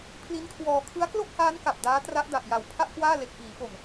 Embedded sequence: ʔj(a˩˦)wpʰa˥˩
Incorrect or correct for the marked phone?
incorrect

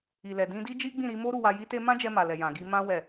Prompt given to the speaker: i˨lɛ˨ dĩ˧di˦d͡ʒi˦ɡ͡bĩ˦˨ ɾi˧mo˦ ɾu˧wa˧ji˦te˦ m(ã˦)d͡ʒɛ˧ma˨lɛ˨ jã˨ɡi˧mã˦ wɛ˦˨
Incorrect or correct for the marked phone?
correct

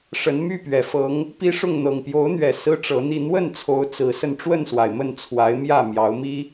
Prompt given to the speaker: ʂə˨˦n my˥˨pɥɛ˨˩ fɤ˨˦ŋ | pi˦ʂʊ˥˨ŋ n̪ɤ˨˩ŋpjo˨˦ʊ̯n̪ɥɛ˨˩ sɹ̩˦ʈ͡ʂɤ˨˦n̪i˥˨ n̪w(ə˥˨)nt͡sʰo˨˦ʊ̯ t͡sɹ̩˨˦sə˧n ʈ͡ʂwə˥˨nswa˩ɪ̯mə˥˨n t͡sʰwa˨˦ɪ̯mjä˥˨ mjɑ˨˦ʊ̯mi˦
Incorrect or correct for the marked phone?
correct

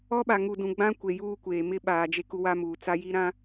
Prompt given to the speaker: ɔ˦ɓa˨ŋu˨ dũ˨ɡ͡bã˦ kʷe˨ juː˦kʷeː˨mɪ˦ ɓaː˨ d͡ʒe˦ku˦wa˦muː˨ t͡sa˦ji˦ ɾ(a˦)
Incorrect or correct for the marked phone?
incorrect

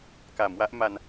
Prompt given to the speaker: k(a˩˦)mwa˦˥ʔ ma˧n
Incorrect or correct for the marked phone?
correct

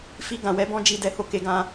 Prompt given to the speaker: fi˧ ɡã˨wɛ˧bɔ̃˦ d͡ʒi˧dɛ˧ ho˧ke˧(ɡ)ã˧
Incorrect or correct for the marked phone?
correct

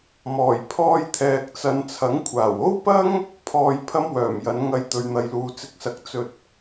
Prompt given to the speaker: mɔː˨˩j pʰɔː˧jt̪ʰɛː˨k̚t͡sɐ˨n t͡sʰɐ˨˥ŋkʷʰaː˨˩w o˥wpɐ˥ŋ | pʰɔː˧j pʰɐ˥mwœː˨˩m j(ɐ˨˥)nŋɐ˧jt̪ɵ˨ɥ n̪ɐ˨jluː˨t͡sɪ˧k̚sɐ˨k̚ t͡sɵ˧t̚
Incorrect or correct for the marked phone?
correct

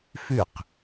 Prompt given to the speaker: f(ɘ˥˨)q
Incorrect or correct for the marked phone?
incorrect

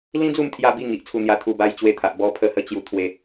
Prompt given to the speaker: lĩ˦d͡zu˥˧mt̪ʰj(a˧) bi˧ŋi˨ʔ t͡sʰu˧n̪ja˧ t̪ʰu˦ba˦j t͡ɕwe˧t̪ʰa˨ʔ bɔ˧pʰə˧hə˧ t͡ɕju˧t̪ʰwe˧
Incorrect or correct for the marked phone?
correct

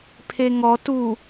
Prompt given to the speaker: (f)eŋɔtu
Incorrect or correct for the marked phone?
incorrect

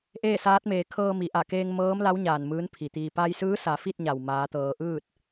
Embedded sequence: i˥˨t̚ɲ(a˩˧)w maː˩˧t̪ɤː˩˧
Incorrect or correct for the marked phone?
incorrect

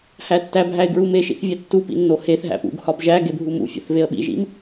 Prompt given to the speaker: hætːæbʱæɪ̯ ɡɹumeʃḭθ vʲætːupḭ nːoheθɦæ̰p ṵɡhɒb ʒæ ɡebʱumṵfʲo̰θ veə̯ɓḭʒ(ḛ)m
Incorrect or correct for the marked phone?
incorrect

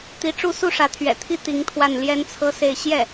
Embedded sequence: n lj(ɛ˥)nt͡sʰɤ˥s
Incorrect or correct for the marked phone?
correct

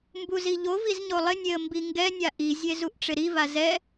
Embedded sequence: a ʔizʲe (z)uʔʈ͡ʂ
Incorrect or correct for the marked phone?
correct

